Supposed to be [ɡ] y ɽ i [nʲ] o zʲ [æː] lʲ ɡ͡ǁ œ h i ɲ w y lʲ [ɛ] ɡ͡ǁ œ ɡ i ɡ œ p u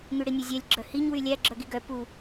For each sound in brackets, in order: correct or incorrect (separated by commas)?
incorrect, correct, incorrect, incorrect